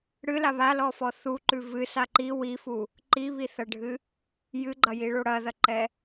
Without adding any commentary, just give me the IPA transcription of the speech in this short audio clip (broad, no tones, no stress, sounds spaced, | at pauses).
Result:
ɽ ɨ l a β a l ɔ f ɔ θ u ǃ ʉ v ɨ s a ǃ i w i f u | ǃ i β i θ ɐ ɖʱ ɨ | j ɨ ɡ͡ǃ ɐ j i ɭ o ɽ ɐ ð ɐ ǃ ɛ